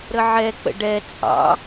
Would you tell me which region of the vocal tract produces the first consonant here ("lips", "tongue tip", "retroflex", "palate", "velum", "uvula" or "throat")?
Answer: tongue tip